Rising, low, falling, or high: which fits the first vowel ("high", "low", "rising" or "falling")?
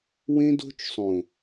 high